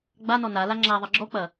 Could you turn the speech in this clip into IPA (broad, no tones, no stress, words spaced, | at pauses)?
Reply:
ɡ͡banɔ nala ŋ͡ǁaðˤɘ ɡ͡ǁɔk͡pɐ